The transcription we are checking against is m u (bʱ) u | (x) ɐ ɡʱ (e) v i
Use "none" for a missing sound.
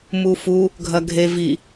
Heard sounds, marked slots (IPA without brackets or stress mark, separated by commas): f, ɡʱ, e